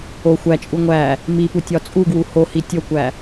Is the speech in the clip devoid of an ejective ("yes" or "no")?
no